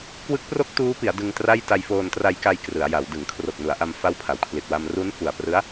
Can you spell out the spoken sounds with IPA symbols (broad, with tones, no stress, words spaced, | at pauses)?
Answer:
kwɯ˦˥k̚pro˥˩k̚tuː˦˥pi˩˦a̯ dɯ˧ŋtra˥˩j ta˧jfoː˧ntra˧jka˧j krɯ˩˦a̯ja˩˦w dɯ˩˦ŋkʰro˨˩k̚nu˩˦a̯ʔa˧m fa˦˥wpʰa˩˦wkʰli˨˩t̚wa˧m ru˦˥nfu˨˩a̯prɯ˦˥a̯